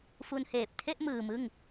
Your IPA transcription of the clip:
f u˧ n h eː˨˩ p̚ tʰ e˥˩ ʔ m ɯː˧ m ɯ˥˩ ŋ

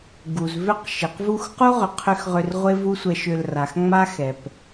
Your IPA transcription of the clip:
ɡ u˨ z v ʏ˦ q ʃ e˨ q v u˦ x q u˦ ʁ ʏ˨ qʰ ʏ˧ x ʁ ʏ˧ r ʁʷ e˦ v u˦ sʷ ɛ˧ ʃ ʏ˧ l r a˨ x ŋ͡m a˦ x ɛ˨ p

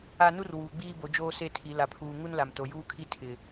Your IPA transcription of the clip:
a˦ n u˦ r w uː˨ ɡ͡b iː˦ b o˨˦ d͡ʒ oː˦ s e˦ tʰ i˨˦ l a˨ pʰ uː˨ ŋ u˦ n l a˨ m t o˨ j uː˦ kʰ i˦ tʰ ɪ˨

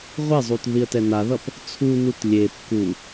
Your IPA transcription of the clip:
ʁʷ e zˤ u t ð i ə̯ t ɛ n a ð ʌ p | t͡sʰ u n u t lʲ e p k u

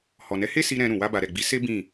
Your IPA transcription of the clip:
h ɔ˨ n ɛ˨˦ h e˦ s i˧ ɾ ɛ̃˧ ɾ ũ˨ w a˧ b a˨ ɾ ɛ˨ ɡ͡b i˨˦ s e˦ b ĩ˦˨

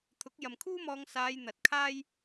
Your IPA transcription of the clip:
t̪ʰ ʊ˨˥ k̚ j ɐ˨ m kʰ uː˥ m ɔː˧ ŋ s aː˧ j n̪ ɐ˨˥ t̚ kʰ aː˥ j

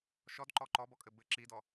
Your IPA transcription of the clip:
ʃ ɔ d ǃ ɔ ǃ ɔ b ɔ kʼ ɘ b ɘ ǁ i d ɔ

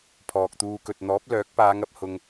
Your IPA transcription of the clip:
pʰ ɔː˨ k̚ t̪ uː˧ k ɵ˨ t̚ n̪ ɔː˨˥ p̚ l œː˨˥ k̚ p aː˨˧ ŋ ɐ˧ p̚ h ʊ˨ ŋ

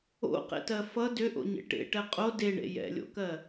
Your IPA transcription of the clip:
o̰ q ḛ t ɜ f ʌ d ʏ ʔ o̰ ɲ ḛ ʈ ḛ ʈ ɛ qʼ o d e ɳ ḛ j ɛ̰ lʲ o̰ k ɜ

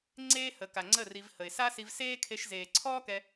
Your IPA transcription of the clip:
ŋ͡ǀ eː˦ h ə˨˦ k a˨ ŋ͡ǀ ə˦˨ r i˧ v h ə˨ ɪ̯ s a˦ s i˧ v s eː˦ kʰ e˧ ʃ z eː˨ ǀʰ ɔː˦ k ɛ˧

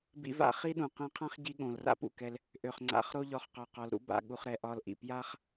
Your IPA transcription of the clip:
b ḭ˧ v a̰˧ χ i˦ ɗ ũ˨ q ɛ̃˧ qʰ ã˦ χ ɟ i˧ ɠ õ˨ l r a̰˦ p ṵ˨ k ɛ˧ l | ʔ ø˨ χ ŋ͡ǀ a̰˨˦ χ ɾ o˦ ʎ ɔ˧ χ q ɒ˨ q ɒ˨ l ɾ ṵ˦ b a̰˨ ɠ u˧ χ ɾ ɛ˧ ʔ ɒ˦˨ l ʔ ḭ˨ p j a˦ χ

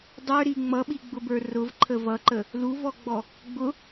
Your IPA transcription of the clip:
dˤ ə˞ ɾ i ŋ͡m ʌ ɓ i ɡ͡b ʊ b ə˞ r ʊ v ǃʰ ə v ʌ ǃ ə | l u v ɔ ɡ͡b ɔ | ɡ͡b ʊ

